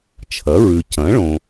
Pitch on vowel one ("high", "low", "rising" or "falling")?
rising